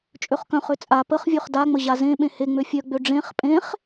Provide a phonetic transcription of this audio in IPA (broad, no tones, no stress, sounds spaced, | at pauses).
t͡ʃʼ ø χ k œ̃ χ ø t͡sʼ a p ə χ vʲ ø χ d a ŋ͡m ə ʑ a z ẽ ɓ ẽ h e ŋ͡m ø fʲ œ ɡ͡b ø ɖ͡ʐ ẽ χ pʼ ẽ χ